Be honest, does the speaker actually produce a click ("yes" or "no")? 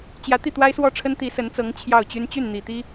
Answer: no